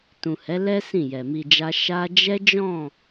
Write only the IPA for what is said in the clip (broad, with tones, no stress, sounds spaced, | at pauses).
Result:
t ũ˨ h ɛ˨˦ l ɛ˦ s ĩ˦˨ j ɛ˨ m i˧ d͡ʒ a˦ ʃ a˦ d͡ʒ ɛ˦ d͡ʒ ɔ̃˦˨